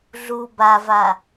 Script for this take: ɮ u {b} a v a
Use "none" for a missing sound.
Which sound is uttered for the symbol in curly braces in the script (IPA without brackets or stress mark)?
b